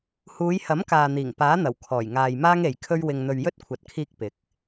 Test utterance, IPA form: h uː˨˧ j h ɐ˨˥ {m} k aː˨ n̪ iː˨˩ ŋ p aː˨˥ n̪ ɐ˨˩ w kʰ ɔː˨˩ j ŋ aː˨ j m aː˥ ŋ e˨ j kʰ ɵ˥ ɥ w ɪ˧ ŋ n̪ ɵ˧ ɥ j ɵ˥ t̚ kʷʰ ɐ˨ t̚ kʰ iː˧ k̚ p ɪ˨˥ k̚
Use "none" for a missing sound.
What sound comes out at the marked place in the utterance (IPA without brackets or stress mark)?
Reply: m